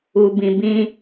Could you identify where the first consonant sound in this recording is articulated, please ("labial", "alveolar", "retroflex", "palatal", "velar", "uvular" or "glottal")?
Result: labial